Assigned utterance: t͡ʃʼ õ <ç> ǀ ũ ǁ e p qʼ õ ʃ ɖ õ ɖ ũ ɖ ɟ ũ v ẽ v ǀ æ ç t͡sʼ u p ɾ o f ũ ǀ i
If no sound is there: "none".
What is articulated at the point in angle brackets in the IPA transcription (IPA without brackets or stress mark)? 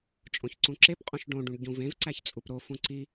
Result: ç